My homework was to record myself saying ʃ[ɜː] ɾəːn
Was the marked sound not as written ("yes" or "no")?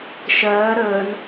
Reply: no